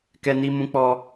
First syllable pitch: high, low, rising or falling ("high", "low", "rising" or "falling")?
high